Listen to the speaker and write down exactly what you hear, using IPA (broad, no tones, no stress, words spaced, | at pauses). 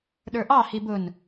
ɗə˞ʔɑ hibʊn